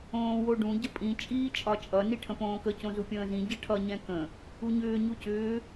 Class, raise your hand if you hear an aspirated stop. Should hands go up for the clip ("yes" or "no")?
yes